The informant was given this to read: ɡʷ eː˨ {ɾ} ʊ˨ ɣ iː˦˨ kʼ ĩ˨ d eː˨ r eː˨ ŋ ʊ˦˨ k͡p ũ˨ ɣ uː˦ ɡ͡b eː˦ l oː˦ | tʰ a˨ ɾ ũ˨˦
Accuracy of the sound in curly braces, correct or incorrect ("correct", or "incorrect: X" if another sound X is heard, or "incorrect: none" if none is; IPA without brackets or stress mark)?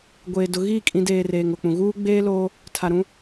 incorrect: d